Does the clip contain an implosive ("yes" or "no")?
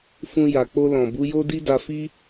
no